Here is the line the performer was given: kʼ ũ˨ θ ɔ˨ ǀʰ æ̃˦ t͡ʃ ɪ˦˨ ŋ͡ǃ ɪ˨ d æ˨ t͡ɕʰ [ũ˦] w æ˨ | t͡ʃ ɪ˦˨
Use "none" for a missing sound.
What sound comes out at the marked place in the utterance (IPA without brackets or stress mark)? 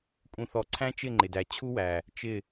u˦